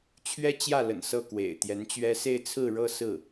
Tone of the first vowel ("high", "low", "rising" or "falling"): high